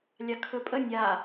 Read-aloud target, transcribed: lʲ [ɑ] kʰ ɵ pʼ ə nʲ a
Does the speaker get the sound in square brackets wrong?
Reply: no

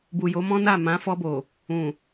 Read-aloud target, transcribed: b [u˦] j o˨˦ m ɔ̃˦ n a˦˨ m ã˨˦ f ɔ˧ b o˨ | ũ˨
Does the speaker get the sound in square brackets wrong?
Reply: yes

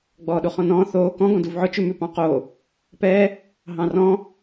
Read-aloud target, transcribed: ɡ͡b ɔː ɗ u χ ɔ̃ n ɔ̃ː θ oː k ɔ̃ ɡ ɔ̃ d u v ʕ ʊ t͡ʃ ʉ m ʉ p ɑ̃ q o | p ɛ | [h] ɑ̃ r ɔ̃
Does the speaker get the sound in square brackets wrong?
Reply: yes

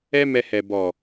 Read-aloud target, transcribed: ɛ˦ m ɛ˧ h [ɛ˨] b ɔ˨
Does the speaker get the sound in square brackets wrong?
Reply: no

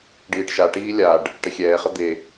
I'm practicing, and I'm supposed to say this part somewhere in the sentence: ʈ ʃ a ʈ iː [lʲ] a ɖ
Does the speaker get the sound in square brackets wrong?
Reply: no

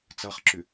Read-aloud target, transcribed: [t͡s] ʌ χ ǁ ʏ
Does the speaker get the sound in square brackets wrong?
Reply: no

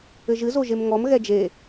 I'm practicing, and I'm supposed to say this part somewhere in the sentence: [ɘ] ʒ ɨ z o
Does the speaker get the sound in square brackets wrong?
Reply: no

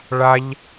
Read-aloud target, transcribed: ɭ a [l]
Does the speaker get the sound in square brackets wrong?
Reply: yes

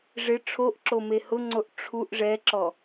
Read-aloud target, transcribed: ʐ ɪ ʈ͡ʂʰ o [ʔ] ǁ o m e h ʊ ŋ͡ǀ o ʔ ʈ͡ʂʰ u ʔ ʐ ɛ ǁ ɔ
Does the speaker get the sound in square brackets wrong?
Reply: no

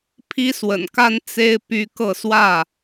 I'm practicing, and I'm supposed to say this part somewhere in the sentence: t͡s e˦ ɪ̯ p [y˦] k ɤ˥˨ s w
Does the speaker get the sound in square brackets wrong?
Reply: no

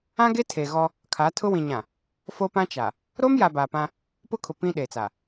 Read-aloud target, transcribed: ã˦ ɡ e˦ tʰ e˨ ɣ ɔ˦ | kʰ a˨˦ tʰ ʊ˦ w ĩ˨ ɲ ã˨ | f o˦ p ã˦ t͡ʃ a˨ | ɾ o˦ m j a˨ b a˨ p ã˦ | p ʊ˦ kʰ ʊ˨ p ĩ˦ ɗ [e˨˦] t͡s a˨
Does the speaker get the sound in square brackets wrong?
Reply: yes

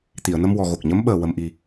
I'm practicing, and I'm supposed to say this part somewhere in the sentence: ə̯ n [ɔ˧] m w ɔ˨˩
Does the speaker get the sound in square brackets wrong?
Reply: yes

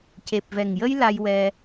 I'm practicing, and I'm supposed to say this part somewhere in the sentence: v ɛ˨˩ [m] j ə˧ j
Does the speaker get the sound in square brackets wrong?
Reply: yes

